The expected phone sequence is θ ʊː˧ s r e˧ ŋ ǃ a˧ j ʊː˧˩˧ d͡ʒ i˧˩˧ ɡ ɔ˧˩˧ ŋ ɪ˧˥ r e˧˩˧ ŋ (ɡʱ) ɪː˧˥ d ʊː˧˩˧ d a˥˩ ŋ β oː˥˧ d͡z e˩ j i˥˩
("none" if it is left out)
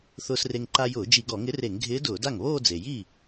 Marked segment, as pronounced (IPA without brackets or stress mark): ɡʱ